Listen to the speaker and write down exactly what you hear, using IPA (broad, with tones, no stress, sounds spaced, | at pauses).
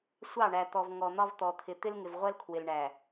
sʷ ɑ˦˨ ɳ æ˨ t̪ ɔ˨ v ŋ ɔ˨ n̪ ɒ˦ v t̪ ɔ˨ t̪ʰ ɪ˨ t̪ ɪ˦ l ŋ ɪ˨ v ʁʷ ɜ˦ l kʰ w ɪ˨ l ɳ æ˨